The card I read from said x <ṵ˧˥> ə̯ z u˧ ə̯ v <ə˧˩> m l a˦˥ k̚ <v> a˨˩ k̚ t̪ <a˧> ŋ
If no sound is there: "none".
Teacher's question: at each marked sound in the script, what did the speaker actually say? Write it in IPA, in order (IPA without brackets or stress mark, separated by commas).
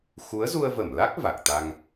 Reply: u˨˦, ə˧˩, v, a˧